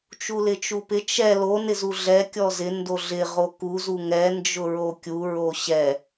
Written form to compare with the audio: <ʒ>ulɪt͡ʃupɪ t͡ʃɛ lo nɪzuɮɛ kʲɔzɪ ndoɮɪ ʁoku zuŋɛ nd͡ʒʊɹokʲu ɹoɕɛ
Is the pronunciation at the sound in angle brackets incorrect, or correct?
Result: incorrect